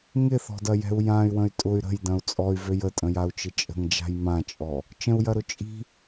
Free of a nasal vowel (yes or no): no